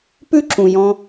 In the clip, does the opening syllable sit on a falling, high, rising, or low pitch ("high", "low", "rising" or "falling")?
high